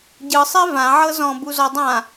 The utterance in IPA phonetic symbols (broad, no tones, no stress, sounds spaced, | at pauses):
ɟ ɯ sˤ e v ã ʕ ɤ z ɔ̃ b u z ɔ dˤ ã